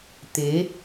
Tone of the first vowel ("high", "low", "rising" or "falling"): rising